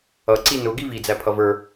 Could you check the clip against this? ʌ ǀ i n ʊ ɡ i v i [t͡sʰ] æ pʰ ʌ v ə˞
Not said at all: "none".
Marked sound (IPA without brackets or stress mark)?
d͡z